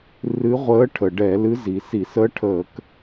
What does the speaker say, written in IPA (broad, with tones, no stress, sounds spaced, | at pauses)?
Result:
r ɨ˧˥ ʁʷ əː˧˥ ʈʰ ə˩ ɖ ɛ˧˩˧ l ɨ˧˥ z i˩ s i˧˩˧ s ə˧˥ ʈʰ əː˧˩˧ k